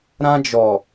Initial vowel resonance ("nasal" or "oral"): nasal